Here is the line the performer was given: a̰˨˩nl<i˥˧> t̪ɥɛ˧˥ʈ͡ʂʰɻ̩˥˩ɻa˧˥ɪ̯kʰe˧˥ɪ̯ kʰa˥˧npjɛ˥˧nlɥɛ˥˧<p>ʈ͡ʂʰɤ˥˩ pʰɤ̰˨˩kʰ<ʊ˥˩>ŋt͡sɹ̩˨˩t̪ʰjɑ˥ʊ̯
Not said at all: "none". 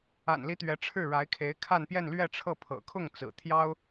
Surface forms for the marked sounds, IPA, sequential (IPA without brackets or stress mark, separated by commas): i˧˥, none, ʊ˥˩